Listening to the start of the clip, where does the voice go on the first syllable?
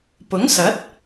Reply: rising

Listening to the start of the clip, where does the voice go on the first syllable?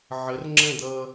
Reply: rising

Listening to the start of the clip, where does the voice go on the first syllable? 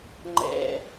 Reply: low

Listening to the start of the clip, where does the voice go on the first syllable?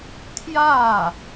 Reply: falling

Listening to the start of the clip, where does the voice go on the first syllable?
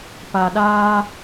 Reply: low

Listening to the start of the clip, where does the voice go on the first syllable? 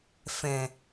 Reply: low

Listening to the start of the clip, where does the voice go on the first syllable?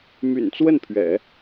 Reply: low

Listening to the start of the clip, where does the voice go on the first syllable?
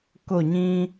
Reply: falling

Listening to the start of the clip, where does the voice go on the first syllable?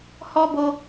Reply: high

